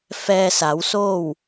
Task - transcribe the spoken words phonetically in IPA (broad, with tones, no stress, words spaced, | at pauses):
fɛː˧sa˩˧wsoː˥˨w